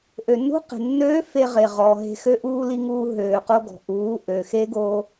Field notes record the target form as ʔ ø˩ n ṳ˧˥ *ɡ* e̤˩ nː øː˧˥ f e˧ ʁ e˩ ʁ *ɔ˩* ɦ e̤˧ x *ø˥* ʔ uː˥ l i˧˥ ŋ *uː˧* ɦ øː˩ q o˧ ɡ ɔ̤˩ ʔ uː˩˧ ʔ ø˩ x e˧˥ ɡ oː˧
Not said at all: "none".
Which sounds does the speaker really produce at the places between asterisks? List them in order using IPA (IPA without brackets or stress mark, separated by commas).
q, ɔ˩, ø˥, uː˧